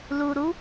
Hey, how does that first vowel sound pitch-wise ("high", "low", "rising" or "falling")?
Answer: low